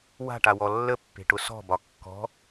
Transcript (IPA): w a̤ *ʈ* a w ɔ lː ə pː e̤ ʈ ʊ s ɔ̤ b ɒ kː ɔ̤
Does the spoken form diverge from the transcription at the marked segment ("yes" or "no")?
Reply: no